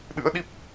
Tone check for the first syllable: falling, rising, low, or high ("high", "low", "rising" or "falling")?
rising